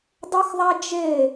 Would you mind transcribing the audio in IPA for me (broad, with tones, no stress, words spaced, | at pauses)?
dˤo˥xðˤæ˥ d͡ʒe˥˧